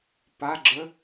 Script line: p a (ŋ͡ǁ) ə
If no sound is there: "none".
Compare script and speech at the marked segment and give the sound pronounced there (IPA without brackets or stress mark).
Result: ɡ͡ǁ